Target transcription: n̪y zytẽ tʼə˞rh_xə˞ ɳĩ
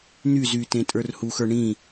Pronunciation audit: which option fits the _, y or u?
u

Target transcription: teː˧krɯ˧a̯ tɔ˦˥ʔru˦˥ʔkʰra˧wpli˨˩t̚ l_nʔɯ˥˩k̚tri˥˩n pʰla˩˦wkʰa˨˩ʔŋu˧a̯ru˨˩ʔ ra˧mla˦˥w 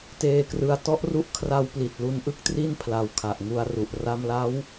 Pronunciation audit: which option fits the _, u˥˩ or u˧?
u˧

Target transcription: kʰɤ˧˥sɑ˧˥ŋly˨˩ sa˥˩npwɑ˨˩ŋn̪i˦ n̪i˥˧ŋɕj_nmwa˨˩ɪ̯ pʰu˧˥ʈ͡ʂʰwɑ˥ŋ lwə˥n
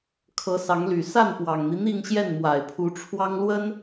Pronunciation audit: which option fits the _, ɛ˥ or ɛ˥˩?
ɛ˥˩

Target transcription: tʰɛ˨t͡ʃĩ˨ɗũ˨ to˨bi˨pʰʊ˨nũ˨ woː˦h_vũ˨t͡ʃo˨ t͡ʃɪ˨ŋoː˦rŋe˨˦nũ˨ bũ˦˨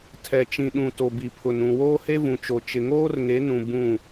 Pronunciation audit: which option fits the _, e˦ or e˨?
e˦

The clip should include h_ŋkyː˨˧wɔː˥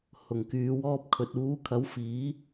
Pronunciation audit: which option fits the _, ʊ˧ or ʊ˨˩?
ʊ˨˩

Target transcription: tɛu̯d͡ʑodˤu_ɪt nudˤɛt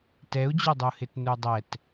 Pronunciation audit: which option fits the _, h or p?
h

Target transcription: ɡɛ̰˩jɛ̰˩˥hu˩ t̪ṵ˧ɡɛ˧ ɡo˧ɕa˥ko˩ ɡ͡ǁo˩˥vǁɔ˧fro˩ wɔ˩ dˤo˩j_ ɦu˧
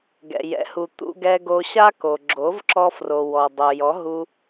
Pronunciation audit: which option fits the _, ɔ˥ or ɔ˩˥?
ɔ˩˥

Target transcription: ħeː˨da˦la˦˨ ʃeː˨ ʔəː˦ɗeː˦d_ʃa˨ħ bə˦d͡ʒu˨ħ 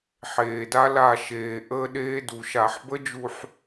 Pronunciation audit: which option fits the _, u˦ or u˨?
u˨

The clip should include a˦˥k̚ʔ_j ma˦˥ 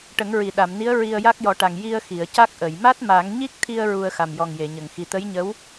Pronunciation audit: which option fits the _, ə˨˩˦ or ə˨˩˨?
ə˨˩˨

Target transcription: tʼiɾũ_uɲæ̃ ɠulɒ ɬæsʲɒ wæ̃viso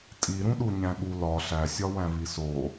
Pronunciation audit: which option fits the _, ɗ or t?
ɗ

